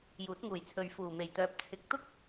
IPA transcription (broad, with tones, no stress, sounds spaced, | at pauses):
j uː˨˥ t̚ ŋ uː˨˩ j t͡sʰ ɵ˨ ɥ f uː˨˩ m e˨˩ j t̪ œː˨ p̚ t͡sʰ ɪ˨˥ k̚ t̪ ʊ˥ k̚